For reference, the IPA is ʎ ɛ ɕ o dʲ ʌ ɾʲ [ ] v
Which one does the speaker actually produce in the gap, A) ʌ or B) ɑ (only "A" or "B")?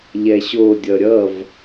A